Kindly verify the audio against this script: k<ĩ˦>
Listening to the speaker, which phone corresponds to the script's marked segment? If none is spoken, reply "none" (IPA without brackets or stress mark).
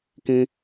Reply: ĩ˦